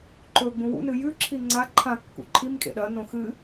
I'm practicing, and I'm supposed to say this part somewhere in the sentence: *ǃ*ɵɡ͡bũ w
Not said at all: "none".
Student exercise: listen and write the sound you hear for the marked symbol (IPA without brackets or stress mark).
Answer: ǃ